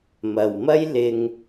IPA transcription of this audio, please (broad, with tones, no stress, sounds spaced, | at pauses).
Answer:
m ɐ˨ w m ɐ˥ j l ɪ˧ ŋ